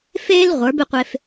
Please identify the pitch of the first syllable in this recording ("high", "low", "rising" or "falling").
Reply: high